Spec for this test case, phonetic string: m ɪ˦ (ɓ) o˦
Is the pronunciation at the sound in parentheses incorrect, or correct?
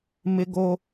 incorrect